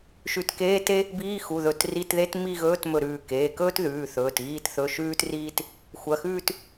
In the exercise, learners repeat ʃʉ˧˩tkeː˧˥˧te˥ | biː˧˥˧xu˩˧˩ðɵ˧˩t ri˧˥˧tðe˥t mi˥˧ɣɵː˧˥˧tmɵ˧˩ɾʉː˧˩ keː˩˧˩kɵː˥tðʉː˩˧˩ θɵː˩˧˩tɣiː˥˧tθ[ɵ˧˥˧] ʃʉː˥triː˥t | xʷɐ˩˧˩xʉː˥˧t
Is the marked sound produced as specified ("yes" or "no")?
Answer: yes